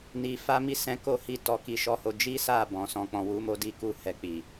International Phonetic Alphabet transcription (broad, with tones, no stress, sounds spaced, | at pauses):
n i˧ f a˦ m i˦ s ɛ̃˧ k o˦ h i˦˨ t ɔ˧ k i˧ ʃ ɔ˦ h o˧ d͡ʒ i˦ s a˦˨ b ɔ̃˨˦ s ɔ̃˧ k͡p ɔ̃˧ w u˦ m o˦ d i˦ k u˦ h ɛ˧ k͡p i˨